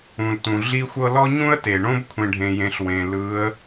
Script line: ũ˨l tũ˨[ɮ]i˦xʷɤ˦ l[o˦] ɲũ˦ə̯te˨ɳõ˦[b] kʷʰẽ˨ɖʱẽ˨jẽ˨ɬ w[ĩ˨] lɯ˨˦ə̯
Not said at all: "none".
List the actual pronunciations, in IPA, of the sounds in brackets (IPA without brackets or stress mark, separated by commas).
ɮ, ɔ˦, b, ẽ˨